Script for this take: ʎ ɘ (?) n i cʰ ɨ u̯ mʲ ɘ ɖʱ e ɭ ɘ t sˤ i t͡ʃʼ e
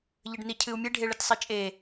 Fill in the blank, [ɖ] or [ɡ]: ɖ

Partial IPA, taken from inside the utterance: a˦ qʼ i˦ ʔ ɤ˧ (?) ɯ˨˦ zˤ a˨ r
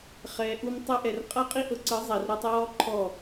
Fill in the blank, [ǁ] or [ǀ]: ǀ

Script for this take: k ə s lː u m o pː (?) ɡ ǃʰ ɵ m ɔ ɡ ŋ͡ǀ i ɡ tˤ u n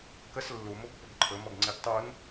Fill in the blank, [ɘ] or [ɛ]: ɘ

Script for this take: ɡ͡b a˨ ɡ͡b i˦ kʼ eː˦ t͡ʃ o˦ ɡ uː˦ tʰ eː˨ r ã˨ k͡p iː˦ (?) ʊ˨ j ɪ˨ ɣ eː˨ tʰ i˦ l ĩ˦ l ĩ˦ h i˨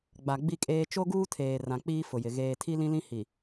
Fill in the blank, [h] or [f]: f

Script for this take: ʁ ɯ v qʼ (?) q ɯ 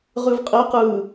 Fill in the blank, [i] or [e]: e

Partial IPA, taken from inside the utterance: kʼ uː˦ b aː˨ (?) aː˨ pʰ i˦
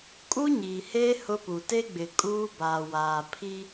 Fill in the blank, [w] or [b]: w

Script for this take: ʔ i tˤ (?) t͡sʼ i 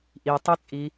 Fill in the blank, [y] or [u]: y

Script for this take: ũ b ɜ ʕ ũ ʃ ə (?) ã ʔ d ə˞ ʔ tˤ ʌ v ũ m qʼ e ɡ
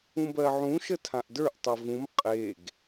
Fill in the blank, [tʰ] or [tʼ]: tʰ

